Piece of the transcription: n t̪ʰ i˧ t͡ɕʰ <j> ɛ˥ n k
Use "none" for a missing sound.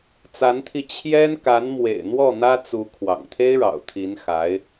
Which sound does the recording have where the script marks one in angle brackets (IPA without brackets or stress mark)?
j